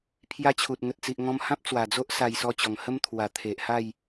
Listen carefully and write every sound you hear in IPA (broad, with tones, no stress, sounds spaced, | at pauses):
pʰ j a˦ t͡ɕʰ u˨ t̚ ŋ ə˨ t̚ t͡s i˨ ʔ ŋ ɔ̃˧ m h ã˦ p̚ t͡s w a˨˩ d͡z o˦ ʔ s a˧ j s ɔ˧ t͡ɕ ɔ˨˩ ŋ h ə˦ m t̪ʰ w a˨˩ t̪ʰ e˨ ʔ h a˥˧ j